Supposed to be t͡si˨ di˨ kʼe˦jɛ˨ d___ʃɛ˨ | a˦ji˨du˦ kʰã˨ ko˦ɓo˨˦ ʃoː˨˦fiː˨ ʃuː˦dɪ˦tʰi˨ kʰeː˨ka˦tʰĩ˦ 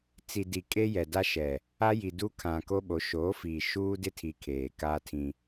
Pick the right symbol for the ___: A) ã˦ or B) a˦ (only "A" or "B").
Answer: B